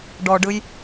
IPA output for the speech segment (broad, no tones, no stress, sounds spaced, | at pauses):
ɖ ɔ ɖ ɯ j